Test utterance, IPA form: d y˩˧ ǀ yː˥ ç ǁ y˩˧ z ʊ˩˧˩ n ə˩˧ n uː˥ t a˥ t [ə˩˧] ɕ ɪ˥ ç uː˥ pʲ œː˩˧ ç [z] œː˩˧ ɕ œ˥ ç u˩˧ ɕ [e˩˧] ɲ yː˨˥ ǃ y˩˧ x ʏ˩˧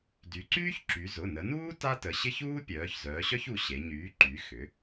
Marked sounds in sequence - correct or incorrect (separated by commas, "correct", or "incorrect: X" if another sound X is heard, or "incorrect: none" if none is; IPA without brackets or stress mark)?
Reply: correct, correct, correct